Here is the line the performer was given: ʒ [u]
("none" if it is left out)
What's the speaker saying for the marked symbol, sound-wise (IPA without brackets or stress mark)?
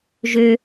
ø